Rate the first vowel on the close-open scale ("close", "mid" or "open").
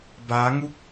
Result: open